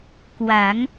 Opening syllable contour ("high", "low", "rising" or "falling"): rising